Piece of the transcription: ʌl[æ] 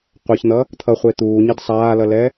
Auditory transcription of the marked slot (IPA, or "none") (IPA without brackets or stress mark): ɛ